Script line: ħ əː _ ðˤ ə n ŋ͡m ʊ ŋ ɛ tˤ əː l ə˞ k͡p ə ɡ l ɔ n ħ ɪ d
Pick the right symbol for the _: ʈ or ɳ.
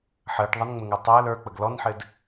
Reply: ʈ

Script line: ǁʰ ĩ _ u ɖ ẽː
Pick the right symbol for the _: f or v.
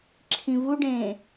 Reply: v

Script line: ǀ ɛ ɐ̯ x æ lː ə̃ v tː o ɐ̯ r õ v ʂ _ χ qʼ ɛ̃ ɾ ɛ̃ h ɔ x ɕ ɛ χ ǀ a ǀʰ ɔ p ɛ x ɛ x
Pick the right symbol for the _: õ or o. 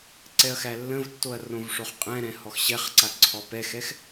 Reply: o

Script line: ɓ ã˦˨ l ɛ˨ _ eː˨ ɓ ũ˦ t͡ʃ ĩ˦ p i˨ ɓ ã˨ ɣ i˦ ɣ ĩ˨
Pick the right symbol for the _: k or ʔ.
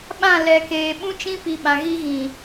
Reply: k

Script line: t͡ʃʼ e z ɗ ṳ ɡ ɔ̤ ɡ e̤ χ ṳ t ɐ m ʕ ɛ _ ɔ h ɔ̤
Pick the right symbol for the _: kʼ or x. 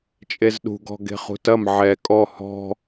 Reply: kʼ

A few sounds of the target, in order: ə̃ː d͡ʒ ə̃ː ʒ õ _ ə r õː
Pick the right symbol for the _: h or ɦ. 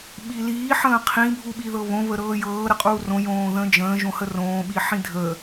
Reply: h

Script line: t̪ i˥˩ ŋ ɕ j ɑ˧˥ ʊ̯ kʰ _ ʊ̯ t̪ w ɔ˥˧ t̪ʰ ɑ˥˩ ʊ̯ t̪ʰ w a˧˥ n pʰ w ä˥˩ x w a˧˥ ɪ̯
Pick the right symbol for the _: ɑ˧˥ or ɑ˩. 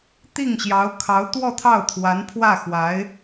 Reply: ɑ˧˥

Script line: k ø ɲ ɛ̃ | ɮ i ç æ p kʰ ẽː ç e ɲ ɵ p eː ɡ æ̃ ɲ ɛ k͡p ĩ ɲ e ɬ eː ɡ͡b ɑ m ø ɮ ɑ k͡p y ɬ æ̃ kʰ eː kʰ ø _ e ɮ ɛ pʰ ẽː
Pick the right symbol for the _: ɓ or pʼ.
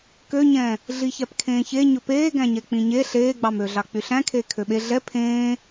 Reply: ɓ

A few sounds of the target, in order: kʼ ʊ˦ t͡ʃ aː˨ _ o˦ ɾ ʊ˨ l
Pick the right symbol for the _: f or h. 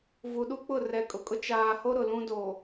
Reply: h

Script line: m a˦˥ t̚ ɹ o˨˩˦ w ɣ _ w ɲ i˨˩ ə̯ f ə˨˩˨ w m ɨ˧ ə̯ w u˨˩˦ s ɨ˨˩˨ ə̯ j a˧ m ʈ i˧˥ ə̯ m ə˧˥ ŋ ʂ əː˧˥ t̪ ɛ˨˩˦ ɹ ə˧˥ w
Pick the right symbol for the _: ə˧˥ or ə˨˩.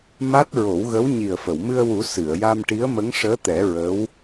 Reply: ə˧˥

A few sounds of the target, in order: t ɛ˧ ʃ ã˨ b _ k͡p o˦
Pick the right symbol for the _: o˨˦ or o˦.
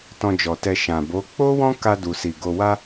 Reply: o˨˦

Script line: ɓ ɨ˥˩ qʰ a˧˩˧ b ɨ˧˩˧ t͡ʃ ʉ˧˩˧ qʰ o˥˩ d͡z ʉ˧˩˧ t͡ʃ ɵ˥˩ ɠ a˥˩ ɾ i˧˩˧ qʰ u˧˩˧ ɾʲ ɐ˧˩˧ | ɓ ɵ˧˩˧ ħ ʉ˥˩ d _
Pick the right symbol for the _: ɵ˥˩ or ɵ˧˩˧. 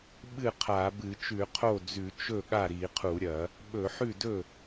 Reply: ɵ˥˩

